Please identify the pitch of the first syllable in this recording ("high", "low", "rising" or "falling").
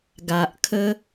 low